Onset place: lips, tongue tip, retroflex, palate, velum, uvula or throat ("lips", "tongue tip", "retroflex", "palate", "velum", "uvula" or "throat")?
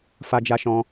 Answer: lips